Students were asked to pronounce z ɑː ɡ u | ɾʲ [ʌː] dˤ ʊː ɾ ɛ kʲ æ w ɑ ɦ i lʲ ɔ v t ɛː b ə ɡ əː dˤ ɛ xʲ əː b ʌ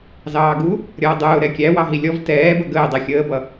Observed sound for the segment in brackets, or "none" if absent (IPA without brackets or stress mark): ʌː